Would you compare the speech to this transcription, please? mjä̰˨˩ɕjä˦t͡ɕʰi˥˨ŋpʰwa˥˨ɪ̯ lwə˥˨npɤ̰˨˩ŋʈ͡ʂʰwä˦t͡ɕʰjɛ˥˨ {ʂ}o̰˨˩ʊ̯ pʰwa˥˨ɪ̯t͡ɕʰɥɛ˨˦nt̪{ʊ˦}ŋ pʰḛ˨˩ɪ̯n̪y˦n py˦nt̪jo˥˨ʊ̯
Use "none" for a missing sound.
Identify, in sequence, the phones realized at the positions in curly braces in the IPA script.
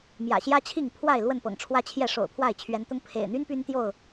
ʂ, ʊ˦

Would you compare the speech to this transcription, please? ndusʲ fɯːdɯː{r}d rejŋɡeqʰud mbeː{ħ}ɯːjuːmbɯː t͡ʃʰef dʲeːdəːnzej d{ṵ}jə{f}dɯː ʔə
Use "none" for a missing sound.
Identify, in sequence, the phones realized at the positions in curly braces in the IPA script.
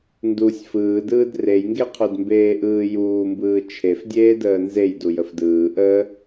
none, ʔ, u, f

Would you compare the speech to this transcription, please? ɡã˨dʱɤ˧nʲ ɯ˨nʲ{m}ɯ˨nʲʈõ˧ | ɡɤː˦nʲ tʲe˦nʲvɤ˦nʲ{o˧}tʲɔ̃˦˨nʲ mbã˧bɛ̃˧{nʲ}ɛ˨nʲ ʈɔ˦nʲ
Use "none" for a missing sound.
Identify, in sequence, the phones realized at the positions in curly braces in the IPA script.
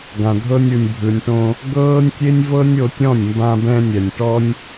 bʱ, o˧, nʲ

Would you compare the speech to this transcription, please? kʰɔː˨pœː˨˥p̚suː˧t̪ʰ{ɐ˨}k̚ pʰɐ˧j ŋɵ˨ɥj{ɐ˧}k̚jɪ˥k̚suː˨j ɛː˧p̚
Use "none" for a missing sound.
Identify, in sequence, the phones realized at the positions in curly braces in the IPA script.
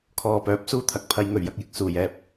ɐ˨, ɐ˥

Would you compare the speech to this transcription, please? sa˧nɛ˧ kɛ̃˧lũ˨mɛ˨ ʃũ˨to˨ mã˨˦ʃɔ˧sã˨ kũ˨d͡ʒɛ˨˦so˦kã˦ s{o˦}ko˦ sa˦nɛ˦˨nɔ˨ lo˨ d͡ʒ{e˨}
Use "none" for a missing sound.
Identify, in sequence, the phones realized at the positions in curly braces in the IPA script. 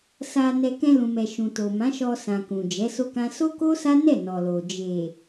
o˦, e˨

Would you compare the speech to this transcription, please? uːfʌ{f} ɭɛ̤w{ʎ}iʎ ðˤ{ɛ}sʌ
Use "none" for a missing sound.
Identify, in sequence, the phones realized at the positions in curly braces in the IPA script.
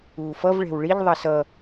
v, ɭ, ɛ

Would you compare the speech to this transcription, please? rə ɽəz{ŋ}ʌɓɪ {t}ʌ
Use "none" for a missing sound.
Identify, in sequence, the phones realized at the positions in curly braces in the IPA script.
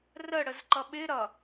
ǃ, ɾ

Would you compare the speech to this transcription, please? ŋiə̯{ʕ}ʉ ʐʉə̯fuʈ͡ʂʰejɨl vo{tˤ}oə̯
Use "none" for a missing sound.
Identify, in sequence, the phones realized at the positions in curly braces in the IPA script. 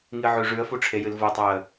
ʕ, tˤ

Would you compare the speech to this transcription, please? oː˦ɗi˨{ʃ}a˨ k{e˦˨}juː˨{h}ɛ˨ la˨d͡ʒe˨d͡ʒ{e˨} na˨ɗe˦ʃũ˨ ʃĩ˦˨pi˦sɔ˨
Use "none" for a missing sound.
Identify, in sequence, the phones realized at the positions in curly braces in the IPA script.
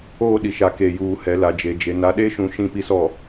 ʃ, e˨, h, e˨

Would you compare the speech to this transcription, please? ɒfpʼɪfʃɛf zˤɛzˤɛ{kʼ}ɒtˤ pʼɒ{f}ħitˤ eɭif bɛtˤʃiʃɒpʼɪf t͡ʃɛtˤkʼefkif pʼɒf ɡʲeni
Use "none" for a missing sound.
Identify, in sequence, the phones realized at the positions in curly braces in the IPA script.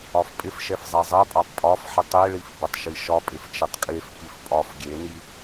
pʼ, f

